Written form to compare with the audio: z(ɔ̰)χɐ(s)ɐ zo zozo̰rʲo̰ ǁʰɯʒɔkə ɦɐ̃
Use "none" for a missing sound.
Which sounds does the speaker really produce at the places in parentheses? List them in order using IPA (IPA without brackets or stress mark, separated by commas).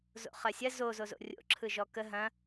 o̰, sʲ